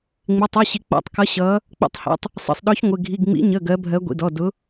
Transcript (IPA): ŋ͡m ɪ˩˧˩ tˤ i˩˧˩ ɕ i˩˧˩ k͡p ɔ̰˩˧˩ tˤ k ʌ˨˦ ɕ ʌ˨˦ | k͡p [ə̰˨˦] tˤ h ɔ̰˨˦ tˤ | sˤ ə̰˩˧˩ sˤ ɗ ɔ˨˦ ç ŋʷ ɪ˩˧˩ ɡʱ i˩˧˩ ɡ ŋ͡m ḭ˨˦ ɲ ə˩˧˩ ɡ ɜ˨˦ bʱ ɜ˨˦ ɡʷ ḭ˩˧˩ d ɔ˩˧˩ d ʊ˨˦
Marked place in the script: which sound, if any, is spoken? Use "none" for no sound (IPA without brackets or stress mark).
ə̰˨˦